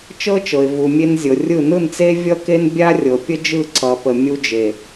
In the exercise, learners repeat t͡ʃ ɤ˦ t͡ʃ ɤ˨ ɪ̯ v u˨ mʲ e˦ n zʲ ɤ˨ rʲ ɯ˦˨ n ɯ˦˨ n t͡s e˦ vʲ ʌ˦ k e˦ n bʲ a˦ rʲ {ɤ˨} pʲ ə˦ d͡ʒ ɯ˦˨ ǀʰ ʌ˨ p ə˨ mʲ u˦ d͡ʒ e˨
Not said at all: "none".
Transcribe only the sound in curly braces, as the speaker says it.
ɤ˨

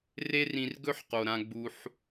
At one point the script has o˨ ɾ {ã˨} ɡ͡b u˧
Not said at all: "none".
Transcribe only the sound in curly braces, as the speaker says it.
ã˧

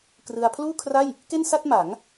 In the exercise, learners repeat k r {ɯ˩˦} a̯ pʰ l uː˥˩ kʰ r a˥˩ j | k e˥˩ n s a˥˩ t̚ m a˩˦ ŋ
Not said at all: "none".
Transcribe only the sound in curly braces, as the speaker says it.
ɯ˧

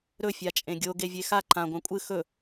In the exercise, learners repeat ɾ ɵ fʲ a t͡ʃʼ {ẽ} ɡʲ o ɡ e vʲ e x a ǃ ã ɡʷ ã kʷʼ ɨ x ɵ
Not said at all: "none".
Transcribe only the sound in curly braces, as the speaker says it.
ẽ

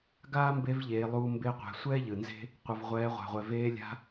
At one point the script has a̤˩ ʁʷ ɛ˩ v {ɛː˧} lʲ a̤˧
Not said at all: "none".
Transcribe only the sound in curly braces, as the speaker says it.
eː˧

